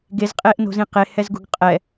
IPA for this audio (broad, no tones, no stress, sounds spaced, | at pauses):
ɡ e z qʼ eː ʔ n o̤ z ĩ q e h ɛ z ɡ ṳ ɡ qʼ ɛ